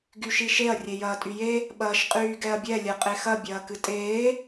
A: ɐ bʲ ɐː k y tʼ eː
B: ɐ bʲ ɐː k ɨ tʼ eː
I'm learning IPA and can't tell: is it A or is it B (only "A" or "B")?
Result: B